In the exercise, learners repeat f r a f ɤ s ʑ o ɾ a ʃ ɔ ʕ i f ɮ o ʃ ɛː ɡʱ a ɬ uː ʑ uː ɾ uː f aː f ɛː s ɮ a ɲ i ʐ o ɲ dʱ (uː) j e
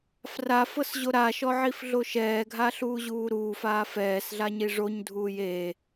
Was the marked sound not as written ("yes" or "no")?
no